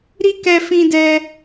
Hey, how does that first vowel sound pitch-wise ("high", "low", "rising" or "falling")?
high